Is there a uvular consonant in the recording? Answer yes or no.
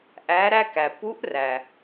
no